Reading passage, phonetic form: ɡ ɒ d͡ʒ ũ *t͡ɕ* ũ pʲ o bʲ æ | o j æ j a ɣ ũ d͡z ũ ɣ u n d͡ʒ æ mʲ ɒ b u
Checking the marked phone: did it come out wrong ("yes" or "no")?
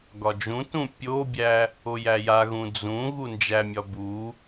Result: yes